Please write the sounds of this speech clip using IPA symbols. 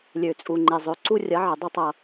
lʲ ø˨ t͡sʼ u˨ ŋ͡ǃ e˨ zˤ ø˨ ǀ u˦ rʲ ɐ˨˦ ʕ ə˨ dˤ e˦ tˤ ʌ˨

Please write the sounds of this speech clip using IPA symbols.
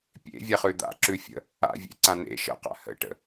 pʲ ḛ vʲ ɛ χ ʉ d̪ a̰ ǁ ʉ fʲ ə̰ | a̰ vʲ ḛ ǀ ã n ḛ ʃ ə̰ q a̰ h ə̰ ʈ ə̰

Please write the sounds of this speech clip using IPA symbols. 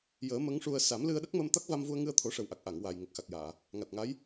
j əː˨˩˦ m ə˧˥ ŋ ʂ u˧ ə̯ s a˨˩˦ m l ɨ˧ ə̯ ɗ ə˦˥ k̚ m ə˧ m t̪ a˦˥ k̚ v a˧ m v u˧ ə̯ ŋ ɨ˧ ə̯ t̪ʰ o˨˩˦ ʂ ə˨˩ w ʔ a˨˩ k̚ ʔ a˨˩˨ ŋ w a˨˩ j ŋ ə˨˩ k̚ x a˨˩ k̚ j aː˨˩˨ | ŋ a˨˩ t̚ ŋ a˧˥ j

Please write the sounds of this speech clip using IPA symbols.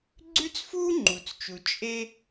ɡ͡ǀ ʉ˦ t͡s f uː˦ ŋ͡ǃ u˨ t͡s t͡ʃ u˨ t͡ʃʼ e˦

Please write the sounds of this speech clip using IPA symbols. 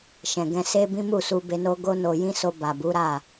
ʃ ɛ̃˨ ɡ ɛ̃˧ s e˦ b ĩ˦ m u˦˨ s u˧ b e˧ n o˦ ɡ o˦ n o˧ j ĩ˦ s o˧ b a˨ b u˨˦ ɾ a˦˨

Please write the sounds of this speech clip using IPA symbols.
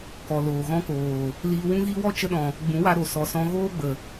k ɔ˨ l oː˨ ɣ ɔ̃˧ k oː˨ | l iː˧ w ũ˦ ɣ i˦ w ɔ˦ t͡ʃ ə˧ ɗ ɔ̃˨ | ɡ͡b ũ˨˦ w a˧ ɾ o˨ s ɔ˨ s ɔ̃˧ ɣ oː˦ ɡ͡b ə˨

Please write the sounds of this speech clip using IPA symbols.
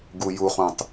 ɡ u j u χ ũ tˤ

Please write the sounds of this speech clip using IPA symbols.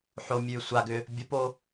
ħ o mʲ ʉː sʷ a ɡ ʏ | bʲ o p o

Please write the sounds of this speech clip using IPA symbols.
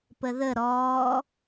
p ə ð ə ɾ ɔː

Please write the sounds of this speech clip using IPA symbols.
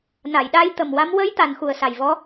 n a˨˩˨ j ɗ a˧˥ j t̪ ə˨˩ m w a˧˥ m w ə˧˥ j t̪ a˨˩ n x u˨˩ ə̯ s a˨˩ j v ɔ˧˥

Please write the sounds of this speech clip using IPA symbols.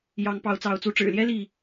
j ɑ˨˦ ŋ p ɑ˨˦ ʊ̯ t͡s ɑ˨˦ ʊ̯ t͡s u˨˦ ʈ͡ʂ ɻ̩˨˩ l j ɛ˦ l i˥˨

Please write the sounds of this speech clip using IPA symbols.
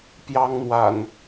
p j ɑ˦ ŋ n̪ w a̰˨˩ n

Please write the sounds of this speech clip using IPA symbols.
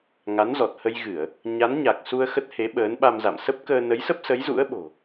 ŋ a˨˦ n z ɔ˨˩ t̚ h ə˧ j ɣ ɨ˧˩˨ ə̯ | ɲ a˨˦ n ɲ a˨˩ k̚ s u˧ ə̯ x ə˦˥ t̚ h e˨˦ ɓ əː˨˦ n ɓ a˧ m z a̰˧˨ m s ə˦˥ p̚ k əː˧ n ə˨˦ j s ə˦˥ p̚ s ə˨˦ j z ṵ˧˥ ə̯ ɓ o̤˨˩

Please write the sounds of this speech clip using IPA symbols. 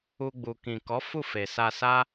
u˧ ɡ͡b u˨ k ĩ˨ k ɔ˨˦ f u˦˨ f e˨ s a˧ s a˦

